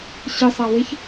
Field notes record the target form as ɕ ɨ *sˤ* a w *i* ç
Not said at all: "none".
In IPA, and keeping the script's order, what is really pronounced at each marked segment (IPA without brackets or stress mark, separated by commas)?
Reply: sˤ, e